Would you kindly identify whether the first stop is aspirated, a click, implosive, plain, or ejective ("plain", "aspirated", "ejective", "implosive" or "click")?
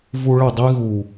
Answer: plain